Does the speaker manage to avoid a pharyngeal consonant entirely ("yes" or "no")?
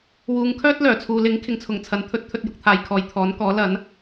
yes